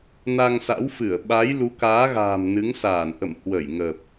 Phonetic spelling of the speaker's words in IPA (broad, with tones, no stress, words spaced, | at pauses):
na˧ŋsa̰˧˥wfɨ˧˩ə̯ ɓa˨˦j lu˨˦kaː˨˦ɣa̤ː˨˩m nɨ˨˦ŋsaː˧˩nʔə̰˧˨m hwə˧˩jŋə˨˩p̚